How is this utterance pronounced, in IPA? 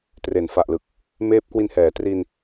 t r e˩˦ n f a˨˩ ʔ l ɯ˨˩ k̚ | m eː˦˥ p̚ k w i˧ n h ɛː˩˦ t r i˧ n

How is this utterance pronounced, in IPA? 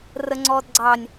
r ə ŋ͡ǀ ɔː d ɡ͡ǀ ɑ nʲ

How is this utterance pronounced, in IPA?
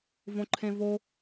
v õ ǃʰ ẽ v o

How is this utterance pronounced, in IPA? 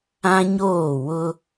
ã˦ ɲ oː˦˨ w ʊ˦

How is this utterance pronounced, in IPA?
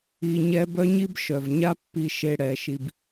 i˧ ɲ ɛ˦ b œ˦ ɲ i˦ b ʃ œ˨ v ɲ a˦ pː i˧ ʃ e˧ ɽ ɛ˧ ʃ i˧ b

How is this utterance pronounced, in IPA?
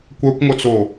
kʷ œ kʷ ŋʷ œ t͡s o

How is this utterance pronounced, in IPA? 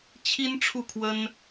t͡ɕʰ i˥ n ʈ͡ʂʰ u˥˩ kʰ w ə˥ n

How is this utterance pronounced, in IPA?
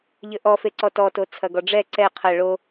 ʎ ɘ ʔ ɔ f e ǀ ɔ t ɔ t o t͡sʰ ɐ ɡ ɔ ɖ͡ʐ ɛ ǀ ɛ qʰ ɐ ɭ o

